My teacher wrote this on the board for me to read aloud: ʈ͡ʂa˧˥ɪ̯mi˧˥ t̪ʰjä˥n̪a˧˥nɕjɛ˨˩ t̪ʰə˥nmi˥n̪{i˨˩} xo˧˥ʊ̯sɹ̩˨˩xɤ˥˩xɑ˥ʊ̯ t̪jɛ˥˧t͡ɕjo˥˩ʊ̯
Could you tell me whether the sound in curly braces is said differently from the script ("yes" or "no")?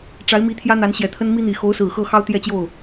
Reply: no